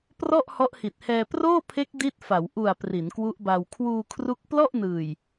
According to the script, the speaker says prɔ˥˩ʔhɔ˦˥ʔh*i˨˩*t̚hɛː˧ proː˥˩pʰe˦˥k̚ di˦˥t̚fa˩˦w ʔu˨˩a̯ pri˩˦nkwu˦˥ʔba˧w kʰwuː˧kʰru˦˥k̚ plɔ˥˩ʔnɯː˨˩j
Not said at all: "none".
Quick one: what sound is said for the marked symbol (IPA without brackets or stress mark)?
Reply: i˨˩